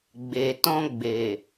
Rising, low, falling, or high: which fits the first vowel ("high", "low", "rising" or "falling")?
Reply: low